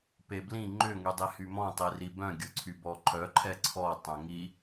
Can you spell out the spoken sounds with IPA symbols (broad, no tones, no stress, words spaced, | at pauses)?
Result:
peblĩ ŋ͡ǃʏ ŋydˤihymɔ̃ tˤiribœ̃ ɡʲʊǀʰybɔǃʰœ ǃʰɛǀʰɔ tˤœ̃ŋi